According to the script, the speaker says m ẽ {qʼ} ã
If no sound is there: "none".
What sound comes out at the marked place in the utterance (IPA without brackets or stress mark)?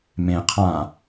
qʰ